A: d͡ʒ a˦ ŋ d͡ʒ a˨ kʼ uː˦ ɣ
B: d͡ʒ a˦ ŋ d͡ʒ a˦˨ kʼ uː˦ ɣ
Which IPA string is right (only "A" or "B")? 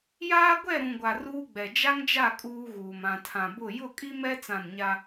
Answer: B